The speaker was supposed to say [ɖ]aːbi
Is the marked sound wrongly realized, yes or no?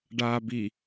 no